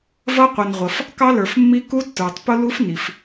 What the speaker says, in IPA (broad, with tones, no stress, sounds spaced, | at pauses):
v ʌ˦˥ qʷ i˩ n ʁʷ ʌ˩ f | k ɑ˦˥ l ə˞˩ f mː i˦˥ k u˦˥ tː ə˞˩ tˤ p ʊ˦˥ l u˦˥ f n i˩ f